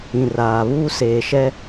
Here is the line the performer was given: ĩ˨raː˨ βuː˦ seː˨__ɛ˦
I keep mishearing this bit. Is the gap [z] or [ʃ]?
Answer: ʃ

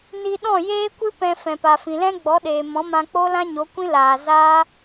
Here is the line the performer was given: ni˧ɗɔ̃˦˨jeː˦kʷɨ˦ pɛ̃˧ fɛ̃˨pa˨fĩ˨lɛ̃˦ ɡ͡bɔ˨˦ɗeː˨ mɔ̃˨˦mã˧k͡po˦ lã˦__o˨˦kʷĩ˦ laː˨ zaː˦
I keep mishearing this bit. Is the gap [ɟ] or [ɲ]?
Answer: ɲ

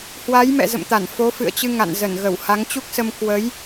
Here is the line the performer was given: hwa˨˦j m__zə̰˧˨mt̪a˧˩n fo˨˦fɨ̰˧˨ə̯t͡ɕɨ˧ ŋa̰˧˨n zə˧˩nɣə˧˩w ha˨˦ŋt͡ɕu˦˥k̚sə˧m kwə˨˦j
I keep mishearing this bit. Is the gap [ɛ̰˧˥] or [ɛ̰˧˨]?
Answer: ɛ̰˧˨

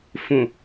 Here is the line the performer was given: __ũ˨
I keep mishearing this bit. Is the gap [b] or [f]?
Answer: f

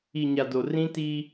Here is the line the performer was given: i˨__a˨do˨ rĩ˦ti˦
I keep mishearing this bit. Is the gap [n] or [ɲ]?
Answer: ɲ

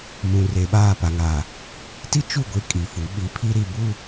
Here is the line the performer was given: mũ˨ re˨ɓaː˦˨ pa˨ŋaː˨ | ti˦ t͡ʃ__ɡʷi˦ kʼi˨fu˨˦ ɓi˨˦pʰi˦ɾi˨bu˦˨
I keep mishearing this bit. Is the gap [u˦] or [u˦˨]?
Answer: u˦˨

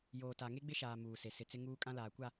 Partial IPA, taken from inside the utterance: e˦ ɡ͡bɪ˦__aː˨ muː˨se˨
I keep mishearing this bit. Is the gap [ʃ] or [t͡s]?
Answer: ʃ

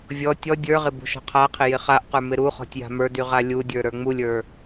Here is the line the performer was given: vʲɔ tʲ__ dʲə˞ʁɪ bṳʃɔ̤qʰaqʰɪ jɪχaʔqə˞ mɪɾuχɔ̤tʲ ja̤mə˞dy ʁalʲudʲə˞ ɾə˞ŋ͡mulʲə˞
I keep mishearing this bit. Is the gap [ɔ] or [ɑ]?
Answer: ɔ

